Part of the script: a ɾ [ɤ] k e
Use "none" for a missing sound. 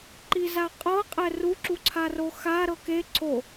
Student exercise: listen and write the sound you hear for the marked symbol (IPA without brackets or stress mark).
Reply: ɤ